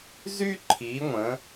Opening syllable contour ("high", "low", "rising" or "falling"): high